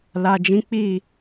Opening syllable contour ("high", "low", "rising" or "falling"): low